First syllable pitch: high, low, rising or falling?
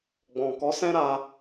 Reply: low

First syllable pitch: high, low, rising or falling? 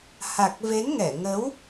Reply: low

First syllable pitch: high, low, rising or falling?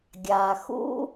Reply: low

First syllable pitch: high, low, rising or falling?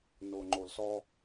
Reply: low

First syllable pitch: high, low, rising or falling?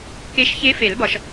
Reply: rising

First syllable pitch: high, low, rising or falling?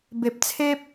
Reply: low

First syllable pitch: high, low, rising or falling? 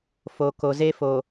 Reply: low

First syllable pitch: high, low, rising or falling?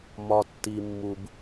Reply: low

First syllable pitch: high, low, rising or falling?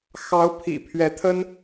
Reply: rising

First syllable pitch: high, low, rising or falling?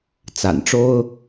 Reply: low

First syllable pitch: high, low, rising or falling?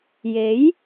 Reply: rising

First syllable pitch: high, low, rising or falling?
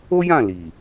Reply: high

